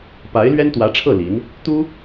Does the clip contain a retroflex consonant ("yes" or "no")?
yes